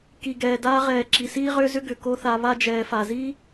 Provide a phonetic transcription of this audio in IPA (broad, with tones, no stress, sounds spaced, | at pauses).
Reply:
k i˨ ɡ ɛː˨ d aː˧ ʁ ɛː˨ ǁ i˨ s iː˦ ʁ ʏː˦ z ʏ˦ ɡ ʏ˨ k o˦ θ a˧ β a˦ d͡ʒ ɛː˨ f a˨ z iː˦